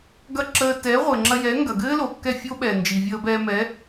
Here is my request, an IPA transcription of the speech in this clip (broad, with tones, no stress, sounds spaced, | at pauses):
ɡ ɐ˥˩ ǁ əː˧ t ɛː˩˥ ʁʷ ɘː˩ ŋ͡ǁ ɐ˧ j ɛː˩˥ ŋ ɡ ɐ˩ ɡ ɘː˥ l o˩ kː ɛ˥˩ fʲ o˥ ɓ ɛː˩ n d͡ʒ i˩ vʲ əː˧ b ɛː˧ m ɛ˩˥